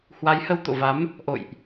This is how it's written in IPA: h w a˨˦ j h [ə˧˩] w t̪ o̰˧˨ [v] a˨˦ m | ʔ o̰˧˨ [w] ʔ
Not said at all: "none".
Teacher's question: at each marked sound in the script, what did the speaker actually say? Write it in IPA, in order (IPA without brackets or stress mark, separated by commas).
ə˧, v, j